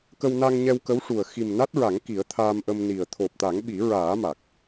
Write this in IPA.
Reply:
kə˧wna˧ŋ ɲɛ˧wkə˧˥wʂu˨˩ə̯ xi˨˩m na˦˥t̚ɹa˨˩˦ŋ ki˨˩˦ə̯t̪ʰaː˧mʔə˧mni˨˩ə̯ t̪ʰo˨˩p̚t̪a˨˩˦ŋɓi˨˩˦ ɹaː˨˩˦ ma˨˩k̚

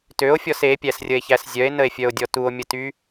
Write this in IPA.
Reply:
tøo̯fʲɔs epʲæsrʲəe̯çæs zʲœe̯nəe̯fʲœo̯dʲɔ tuo̯mʲəty

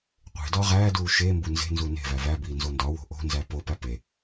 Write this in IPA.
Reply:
qʷe̤ dɒʁæːduː ʃembu nze̤nzu ne̤væ væbiː nzondɒwo̤ ʔo̤nzæ popæ pe

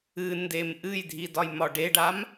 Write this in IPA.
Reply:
ɨ ndemʔɨjdʱi dɒjmɒɖeɖam

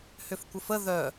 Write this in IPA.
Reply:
hʏfkʷəfə ðœ

